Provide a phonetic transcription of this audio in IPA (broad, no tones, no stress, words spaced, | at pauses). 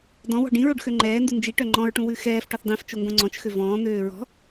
dɔ̃wɔ̤ ɖĩɹoɖ xøŋ͡ǃɛːndu nd͡ʒiʈœ ŋ͡ǃɔ̃ɹʈũ wʉxɛːfʈɔθ dˤĩft͡ʃo ŋɡõŋ͡ǀɔ̃t͡ʃxø vɔ̃ːn̪øː ɹɔ̤